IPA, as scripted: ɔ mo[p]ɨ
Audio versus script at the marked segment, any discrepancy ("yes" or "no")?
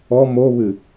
yes